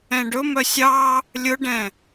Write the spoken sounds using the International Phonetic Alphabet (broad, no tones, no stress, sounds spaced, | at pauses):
ɛ̃ ɖ ɵ m œ sʲ ɑ | lʲ ɵ ɖ ɛ̃